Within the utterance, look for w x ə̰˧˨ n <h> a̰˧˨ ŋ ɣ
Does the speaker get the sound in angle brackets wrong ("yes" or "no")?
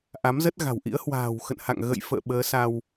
no